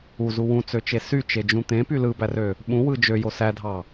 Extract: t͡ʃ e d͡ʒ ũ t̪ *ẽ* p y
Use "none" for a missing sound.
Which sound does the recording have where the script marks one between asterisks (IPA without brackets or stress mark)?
ẽ